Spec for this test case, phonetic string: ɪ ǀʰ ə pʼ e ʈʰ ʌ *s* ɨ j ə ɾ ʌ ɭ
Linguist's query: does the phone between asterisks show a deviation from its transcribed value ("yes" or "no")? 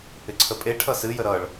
no